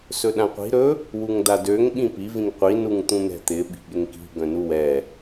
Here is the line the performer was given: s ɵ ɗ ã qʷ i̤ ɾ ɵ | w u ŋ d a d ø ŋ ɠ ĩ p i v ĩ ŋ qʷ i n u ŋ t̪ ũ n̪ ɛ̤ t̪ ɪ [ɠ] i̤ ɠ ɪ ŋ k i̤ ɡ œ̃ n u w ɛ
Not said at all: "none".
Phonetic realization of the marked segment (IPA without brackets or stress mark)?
ɓ